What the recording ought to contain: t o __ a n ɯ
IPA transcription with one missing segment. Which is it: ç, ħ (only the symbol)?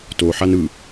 ħ